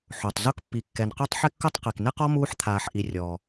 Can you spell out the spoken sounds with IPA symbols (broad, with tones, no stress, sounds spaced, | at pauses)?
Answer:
ħ o˩ tˤ z o˦ k pː i˩ kː ɛ˩ n q u˦ tˤ ħ ɪ˦ kː ʊ˦ tˤ q i˩ k n ɪ˥ q ɔ˥ m uː˥ ħ t̪ʰ aː˨ ħ ʔ i˨ rʲ ɔː˩